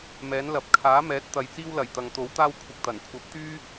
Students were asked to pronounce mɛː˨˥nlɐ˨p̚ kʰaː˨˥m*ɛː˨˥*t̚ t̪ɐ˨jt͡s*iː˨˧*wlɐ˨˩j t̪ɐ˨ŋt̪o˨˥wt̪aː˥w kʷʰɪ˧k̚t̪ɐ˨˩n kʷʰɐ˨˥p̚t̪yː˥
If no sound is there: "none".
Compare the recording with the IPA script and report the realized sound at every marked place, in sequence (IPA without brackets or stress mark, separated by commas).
ɛː˨˥, iː˥